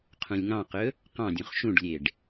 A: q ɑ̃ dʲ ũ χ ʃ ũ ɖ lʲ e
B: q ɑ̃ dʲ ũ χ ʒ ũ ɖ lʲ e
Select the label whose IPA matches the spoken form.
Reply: A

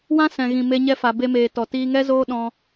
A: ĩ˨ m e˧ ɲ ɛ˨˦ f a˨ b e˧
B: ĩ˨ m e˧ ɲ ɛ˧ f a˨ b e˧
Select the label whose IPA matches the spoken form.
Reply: B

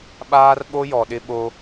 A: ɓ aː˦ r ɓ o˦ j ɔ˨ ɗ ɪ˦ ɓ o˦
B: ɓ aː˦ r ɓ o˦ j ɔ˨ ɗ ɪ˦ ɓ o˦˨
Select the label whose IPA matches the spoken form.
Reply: A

